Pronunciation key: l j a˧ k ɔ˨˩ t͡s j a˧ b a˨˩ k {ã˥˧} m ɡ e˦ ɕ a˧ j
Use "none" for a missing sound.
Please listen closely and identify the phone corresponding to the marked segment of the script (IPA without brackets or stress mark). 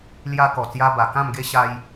ã˥˧